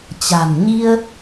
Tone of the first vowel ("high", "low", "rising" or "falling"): low